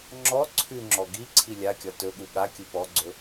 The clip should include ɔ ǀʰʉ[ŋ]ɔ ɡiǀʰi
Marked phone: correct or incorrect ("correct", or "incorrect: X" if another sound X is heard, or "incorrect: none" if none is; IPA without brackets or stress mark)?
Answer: incorrect: ŋ͡ǁ